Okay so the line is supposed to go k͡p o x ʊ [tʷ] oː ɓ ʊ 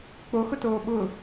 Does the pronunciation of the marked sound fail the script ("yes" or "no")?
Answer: yes